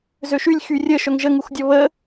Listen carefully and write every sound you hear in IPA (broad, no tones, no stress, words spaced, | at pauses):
zøʃylʲ xyrʲə ʃœŋʒəŋuxdʲɔ βə